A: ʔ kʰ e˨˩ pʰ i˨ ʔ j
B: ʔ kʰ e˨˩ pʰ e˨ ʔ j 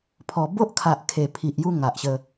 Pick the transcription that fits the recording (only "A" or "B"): A